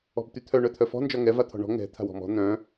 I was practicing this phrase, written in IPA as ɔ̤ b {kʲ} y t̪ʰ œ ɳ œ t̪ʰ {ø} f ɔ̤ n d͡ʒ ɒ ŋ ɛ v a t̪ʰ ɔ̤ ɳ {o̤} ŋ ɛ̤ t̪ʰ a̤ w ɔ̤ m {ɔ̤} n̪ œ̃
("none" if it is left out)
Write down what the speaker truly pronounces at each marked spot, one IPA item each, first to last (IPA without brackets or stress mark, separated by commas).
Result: t̪, œ, ɔ̤, ɔ̤